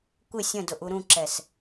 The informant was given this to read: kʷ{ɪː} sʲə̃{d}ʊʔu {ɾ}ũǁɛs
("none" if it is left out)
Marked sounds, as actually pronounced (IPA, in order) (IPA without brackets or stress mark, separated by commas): ɪ, d, ɾ